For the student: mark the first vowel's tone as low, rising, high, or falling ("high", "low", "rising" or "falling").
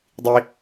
high